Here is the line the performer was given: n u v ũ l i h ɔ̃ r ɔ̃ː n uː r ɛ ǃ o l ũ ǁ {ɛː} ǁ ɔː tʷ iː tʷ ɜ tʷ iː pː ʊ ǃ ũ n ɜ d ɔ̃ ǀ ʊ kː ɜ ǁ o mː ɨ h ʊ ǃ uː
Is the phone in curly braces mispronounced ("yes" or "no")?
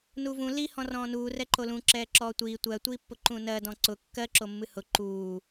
no